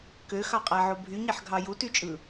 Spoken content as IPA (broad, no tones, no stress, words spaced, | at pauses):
køxɑqʼæʕo bʱyɲeħɡʱɑ jutyt͡ʃʼɯ